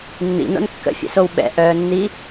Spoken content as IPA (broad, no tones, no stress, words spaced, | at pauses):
nːḭno̰n kːə̰fʲɛ̰sow ɓɛ̰ʔœːnːi